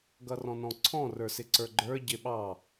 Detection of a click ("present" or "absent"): present